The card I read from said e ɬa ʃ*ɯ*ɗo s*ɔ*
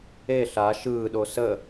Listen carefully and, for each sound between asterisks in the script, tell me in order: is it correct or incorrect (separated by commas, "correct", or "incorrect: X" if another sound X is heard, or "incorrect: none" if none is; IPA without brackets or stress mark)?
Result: incorrect: ɯː, incorrect: ə